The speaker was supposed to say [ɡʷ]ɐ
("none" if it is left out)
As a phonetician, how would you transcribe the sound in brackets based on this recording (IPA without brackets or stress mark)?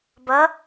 b